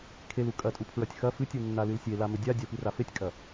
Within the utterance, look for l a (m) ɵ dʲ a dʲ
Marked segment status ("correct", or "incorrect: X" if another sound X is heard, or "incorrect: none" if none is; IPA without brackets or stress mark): correct